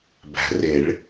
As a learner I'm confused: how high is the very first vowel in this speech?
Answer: low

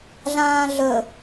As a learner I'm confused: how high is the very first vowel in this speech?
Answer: low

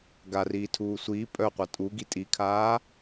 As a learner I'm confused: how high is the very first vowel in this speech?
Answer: low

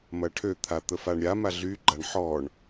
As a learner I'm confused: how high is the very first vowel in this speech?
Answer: low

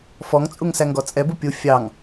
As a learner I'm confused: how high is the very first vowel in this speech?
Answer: mid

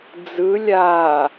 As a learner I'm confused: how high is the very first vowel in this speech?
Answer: high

